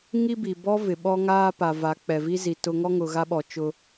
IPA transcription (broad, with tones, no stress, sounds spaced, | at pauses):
ŋ i˦ b i˨ b ɔ˦ v ɪ˨ ɓ ɔ˦ ŋ aː˦ p a˨ v a˨˦ k͡p ɛ˨ v i˦ z i˨ t ʊ˦ ŋ ɔ˦ ŋ ʊ˨ ɣ a˦ ɓ ɔ˨ t͡ʃ ʊ˦